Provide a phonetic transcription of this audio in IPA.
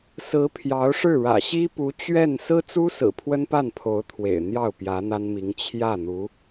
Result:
sɹ̩˧˥ pʰjɑ˧˥ʊ̯ʂɻ̩˥˩ɻä̰˨˩ ɕi˥pu˧˥ t͡ɕɥɛ˥˩n sɹ̩˥t͡su˥sɹ̩˨˩ pʰwə˥npa˥˩npʰo˧˥ʊ̯ t̪ʰwḛ˨˩ɪ̯n̪jɑ˥˩ʊ̯ pjä˧˥n̪a˥nmi˧˥ŋ t͡ɕʰjä˥˩n̪u˧˥

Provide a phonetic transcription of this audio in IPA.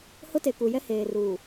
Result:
hʊ˦te˨ ku˨jɛ˦heː˨ruː˨

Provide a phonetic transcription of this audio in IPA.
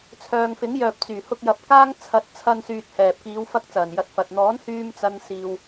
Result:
t͡sʰœː˨ŋfɪ˨˥ŋjœː˨p̚ t͡syː˨˩ hʊ˧k̚jɐ˨p̚ kaː˥ŋ t͡sʰɐ˨˥t̚t͡sʰɐ˧n syː˧t̚hɛː˨p̚ kiː˨˧w fɐ˥k̚t͡sɐ˨˩n jɐ˨˥t̚fɐ˨t̚ n̪ɔː˨˥nhyː˧m t͡sɐ˧nsiː˨w

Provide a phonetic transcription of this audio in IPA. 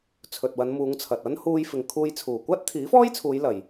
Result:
t͡sʰɵ˨t̚wɐ˨˧nmuː˨˧ŋt͡sʰɐ˨t̚ ɐ˥n huː˧jfɪ˨ŋkʰuː˧jt͡sʰuː˨˩ kʷaː˥t̚t̪ʰiː˨˥fɔː˥jt͡sʰuː˨˧j lɐ˨j

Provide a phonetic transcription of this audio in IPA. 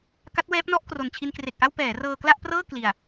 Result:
ka˦˥t̚wɛː˦˥p̚nɔ˥˩ʔkro˨˩n t͡ɕʰi˧nkre˨˩k̚ʔa˥˩w pɛː˩˦rɤː˧ kla˥˩ʔprɤː˥˩ kli˨˩a̯

